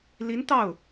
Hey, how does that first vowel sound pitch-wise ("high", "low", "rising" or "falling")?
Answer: rising